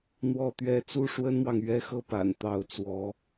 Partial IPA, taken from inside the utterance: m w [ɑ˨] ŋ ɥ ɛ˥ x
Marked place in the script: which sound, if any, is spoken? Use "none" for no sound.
ɑ˨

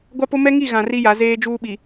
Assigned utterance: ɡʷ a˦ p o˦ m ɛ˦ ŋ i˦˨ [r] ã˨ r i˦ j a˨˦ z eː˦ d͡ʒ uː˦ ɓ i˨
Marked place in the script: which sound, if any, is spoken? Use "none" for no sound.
ɣ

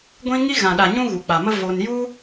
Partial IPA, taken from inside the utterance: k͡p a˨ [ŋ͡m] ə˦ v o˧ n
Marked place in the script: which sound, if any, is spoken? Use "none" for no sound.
m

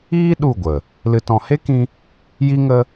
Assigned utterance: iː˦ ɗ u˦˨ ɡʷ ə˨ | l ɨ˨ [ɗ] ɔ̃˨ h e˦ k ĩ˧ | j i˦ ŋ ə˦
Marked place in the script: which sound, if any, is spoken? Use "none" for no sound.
t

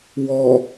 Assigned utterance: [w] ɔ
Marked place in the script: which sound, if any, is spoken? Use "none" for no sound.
w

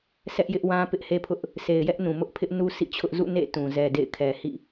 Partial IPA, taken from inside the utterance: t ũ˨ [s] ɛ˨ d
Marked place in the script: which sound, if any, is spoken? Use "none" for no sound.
z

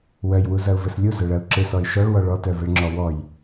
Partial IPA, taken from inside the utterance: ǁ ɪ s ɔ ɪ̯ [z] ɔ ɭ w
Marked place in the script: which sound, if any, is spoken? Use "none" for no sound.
ʃ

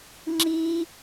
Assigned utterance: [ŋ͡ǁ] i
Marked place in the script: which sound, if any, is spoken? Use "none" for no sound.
ŋ͡ǁ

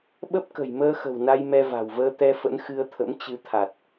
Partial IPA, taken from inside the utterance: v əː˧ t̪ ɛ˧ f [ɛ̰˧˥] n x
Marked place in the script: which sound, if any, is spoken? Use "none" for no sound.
ə̰˧˥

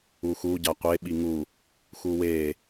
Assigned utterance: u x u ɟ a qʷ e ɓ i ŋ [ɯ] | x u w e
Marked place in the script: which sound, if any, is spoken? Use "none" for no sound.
u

